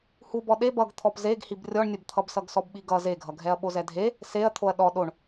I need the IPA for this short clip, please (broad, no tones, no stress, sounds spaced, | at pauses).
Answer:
h u b ɔ ɗ e b ʌ ɡ t̪ʰ ɔ p z e ɡ h i b rʲ ɔ ɳ nʲ ʌ b t̪ʰ ʌ b s ʌ ɡ s ɔ b ɓ i ɡ ʌ z e ɡʱ ʌ ɡʱ ɛ ɐ̯ ɓ o z ɛ dʱ e | s e ɐ̯ t̪ʰ o ɐ̯ ɗ ɔ ɗ o ɳ